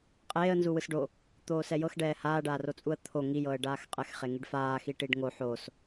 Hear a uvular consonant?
yes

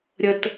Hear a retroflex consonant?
no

